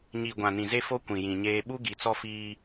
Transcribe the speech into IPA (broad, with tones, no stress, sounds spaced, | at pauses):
ɲ i˨ ɡʷ ã˨ n ĩ˨ z e˦ f o˦ kʷ ĩ˨ j ĩ˨ ɲ eː˦ ɓ u˦ ɡ i˨ t͡s ɔ˦ f iː˦